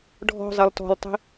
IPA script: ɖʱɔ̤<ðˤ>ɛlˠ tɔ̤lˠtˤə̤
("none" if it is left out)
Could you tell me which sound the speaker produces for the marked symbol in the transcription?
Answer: zˤ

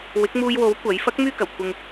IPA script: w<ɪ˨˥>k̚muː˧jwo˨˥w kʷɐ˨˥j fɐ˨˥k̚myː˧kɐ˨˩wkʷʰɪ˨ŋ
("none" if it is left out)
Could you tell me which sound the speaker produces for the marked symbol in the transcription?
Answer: ɪ˨˥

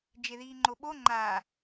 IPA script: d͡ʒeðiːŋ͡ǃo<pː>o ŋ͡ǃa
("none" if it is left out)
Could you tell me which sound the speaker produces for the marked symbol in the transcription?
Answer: ɓ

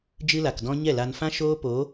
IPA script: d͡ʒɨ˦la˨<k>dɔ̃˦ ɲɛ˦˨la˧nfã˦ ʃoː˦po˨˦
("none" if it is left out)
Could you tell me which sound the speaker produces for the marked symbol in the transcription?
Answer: k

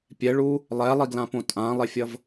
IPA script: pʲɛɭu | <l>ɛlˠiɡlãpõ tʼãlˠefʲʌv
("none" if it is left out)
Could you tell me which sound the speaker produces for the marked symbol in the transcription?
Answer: lˠ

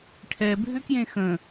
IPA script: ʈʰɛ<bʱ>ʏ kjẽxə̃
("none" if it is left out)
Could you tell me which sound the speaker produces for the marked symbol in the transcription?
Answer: bʱ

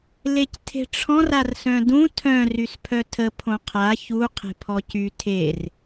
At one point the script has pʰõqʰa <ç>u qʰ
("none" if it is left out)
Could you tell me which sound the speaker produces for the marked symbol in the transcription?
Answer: ç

